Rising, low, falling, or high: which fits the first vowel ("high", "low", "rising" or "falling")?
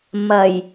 low